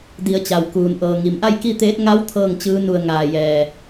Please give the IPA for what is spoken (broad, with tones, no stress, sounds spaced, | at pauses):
d i˩˧ ə̯ t͡ɕ a˩ w k uː˩ n ʔ ɤː˩ ŋ i˩ m ʔ a˥˨ j k i˥˨ t̪ eː˧˥ t̚ ŋ a˧˥ w t̪ʰ ɤː˥˨ ŋ t͡ɕ ɯː˧˥ n u˧˩ ə̯ ŋ aː˧˩ j ɛː˧˩